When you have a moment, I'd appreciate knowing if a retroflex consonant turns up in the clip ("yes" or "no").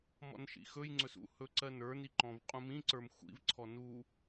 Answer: no